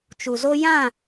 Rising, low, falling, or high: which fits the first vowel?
low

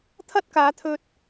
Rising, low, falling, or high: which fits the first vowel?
high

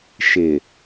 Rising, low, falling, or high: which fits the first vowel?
low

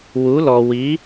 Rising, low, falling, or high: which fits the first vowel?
rising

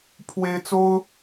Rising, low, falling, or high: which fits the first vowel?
high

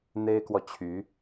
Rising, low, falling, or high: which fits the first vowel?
high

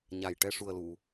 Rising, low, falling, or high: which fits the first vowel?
low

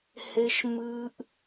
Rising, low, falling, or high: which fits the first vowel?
high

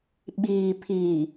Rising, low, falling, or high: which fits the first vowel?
low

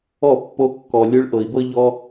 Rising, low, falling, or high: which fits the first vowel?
falling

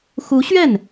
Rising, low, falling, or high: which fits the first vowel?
rising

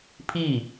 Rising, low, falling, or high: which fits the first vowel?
falling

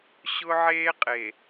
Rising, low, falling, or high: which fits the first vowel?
high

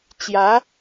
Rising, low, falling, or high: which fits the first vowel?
rising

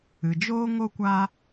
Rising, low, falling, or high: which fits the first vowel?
low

